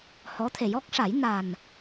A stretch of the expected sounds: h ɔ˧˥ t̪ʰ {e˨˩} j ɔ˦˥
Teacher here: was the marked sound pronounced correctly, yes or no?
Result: yes